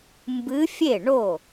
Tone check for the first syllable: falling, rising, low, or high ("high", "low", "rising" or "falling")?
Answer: rising